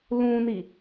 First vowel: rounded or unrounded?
rounded